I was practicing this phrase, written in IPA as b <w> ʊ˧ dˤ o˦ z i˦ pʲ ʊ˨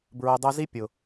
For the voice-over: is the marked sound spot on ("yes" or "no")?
no